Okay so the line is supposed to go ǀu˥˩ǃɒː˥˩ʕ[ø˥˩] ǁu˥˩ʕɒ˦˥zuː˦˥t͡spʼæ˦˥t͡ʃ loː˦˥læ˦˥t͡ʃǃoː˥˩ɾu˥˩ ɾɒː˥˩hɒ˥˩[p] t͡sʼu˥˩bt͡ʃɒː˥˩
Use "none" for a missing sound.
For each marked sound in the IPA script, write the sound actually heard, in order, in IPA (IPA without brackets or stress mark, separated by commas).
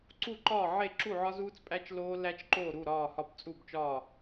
e˥˩, p